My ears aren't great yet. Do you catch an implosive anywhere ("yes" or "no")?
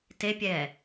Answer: no